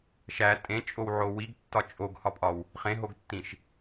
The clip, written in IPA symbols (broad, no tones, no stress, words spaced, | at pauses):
ʃæ tʼẽt͡ʃʼowʕo wiɡtːɒ t͡ʃʼoɡhɒpʼɒw | χẽɦoɡtːĩʃ